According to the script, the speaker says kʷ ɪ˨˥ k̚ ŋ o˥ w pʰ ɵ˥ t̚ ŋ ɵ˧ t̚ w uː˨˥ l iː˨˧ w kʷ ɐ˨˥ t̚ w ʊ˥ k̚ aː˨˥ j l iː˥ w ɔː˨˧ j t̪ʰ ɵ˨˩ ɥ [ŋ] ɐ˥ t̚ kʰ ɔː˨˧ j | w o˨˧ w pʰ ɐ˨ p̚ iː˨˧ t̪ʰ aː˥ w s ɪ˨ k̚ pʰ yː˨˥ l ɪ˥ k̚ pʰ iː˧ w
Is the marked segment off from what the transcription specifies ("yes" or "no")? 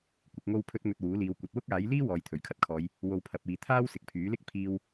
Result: yes